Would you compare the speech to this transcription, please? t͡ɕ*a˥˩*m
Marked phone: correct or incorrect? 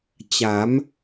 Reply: incorrect